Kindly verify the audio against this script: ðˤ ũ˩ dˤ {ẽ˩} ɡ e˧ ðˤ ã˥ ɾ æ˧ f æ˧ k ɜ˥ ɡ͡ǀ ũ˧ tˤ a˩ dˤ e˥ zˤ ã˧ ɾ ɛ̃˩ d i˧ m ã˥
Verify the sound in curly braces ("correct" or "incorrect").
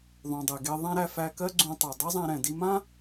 incorrect